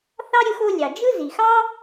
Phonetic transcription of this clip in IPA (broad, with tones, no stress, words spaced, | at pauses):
θɑ˥ɾʲɯ˦xo˦ lʲɑ˩d͡ʒɯ˥ zi˩xɑ˥